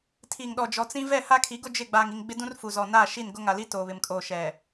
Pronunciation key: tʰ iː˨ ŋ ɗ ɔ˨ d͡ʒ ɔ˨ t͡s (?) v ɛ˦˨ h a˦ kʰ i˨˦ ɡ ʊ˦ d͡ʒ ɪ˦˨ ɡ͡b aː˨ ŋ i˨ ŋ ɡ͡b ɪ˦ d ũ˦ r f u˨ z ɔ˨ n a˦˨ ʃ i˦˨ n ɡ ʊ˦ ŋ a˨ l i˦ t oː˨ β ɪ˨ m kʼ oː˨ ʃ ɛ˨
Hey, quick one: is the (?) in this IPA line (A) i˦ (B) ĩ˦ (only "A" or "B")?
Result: B